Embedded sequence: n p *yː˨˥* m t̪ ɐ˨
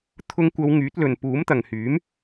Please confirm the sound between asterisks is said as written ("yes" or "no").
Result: no